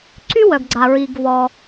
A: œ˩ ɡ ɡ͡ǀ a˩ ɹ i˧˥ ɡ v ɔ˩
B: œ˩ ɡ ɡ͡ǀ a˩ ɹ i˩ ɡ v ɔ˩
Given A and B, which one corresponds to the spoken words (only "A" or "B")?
B